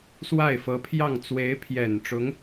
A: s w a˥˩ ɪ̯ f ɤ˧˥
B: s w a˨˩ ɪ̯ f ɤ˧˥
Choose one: A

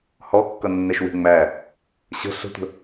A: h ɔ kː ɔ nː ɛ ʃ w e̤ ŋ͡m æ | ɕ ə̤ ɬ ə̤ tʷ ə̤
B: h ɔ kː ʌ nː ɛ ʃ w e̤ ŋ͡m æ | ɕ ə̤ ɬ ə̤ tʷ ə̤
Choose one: B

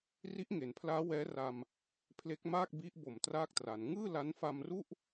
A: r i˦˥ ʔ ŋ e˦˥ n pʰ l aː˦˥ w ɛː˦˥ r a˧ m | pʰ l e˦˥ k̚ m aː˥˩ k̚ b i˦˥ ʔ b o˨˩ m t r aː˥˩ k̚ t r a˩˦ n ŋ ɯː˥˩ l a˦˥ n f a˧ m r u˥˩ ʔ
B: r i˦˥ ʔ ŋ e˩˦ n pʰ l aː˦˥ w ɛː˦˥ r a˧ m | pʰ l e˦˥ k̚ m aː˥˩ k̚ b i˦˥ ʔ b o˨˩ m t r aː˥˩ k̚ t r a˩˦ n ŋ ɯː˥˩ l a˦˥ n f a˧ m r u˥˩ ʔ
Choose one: B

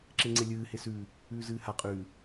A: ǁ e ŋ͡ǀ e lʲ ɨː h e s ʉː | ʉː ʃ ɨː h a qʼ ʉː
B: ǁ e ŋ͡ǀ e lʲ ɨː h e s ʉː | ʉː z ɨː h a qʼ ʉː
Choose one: B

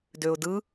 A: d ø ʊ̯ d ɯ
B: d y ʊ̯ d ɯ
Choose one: A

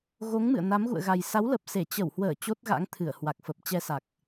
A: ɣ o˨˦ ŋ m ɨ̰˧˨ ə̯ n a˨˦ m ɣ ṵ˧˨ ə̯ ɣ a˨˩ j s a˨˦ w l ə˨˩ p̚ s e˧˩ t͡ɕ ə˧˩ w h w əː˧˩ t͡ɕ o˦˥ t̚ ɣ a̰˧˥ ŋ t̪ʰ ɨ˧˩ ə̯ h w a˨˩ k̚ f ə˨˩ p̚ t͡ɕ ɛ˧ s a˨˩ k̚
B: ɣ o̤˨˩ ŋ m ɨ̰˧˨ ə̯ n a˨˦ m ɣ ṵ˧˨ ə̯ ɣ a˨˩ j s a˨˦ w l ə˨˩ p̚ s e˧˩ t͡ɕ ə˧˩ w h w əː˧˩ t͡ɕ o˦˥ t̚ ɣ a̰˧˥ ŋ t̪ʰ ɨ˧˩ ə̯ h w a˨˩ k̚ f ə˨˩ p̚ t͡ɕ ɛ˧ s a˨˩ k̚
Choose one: A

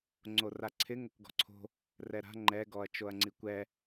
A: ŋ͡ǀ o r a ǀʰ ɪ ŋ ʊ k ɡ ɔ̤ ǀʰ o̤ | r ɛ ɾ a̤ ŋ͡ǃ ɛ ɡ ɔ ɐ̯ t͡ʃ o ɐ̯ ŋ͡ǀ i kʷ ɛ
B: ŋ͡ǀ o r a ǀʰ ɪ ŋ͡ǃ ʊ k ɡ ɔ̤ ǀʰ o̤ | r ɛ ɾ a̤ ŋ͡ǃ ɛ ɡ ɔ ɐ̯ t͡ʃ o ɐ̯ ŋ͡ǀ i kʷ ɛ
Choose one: A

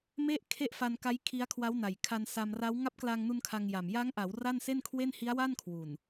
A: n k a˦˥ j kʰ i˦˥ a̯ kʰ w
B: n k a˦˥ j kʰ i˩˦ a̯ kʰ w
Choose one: A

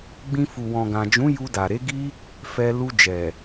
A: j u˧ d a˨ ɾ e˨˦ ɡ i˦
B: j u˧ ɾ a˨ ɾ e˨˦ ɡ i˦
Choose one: A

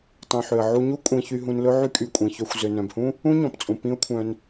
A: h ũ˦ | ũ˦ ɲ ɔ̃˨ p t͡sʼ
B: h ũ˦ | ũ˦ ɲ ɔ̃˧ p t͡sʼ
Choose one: A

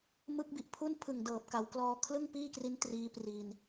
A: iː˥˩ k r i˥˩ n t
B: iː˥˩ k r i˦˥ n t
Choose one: B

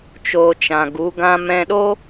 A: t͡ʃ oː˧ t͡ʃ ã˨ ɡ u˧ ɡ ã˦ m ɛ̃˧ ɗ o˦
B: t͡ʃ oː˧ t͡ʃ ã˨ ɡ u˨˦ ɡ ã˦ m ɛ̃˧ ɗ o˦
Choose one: B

